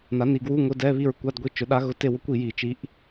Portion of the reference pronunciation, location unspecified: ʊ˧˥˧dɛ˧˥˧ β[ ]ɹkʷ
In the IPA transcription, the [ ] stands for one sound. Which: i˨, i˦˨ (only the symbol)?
i˦˨